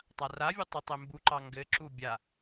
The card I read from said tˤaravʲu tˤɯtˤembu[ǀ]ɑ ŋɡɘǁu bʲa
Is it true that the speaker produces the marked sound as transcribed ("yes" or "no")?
no